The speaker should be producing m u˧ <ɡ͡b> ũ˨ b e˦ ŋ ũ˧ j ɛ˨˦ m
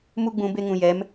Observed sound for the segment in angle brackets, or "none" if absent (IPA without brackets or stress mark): ɡ͡b